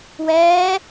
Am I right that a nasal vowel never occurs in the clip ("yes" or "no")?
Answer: yes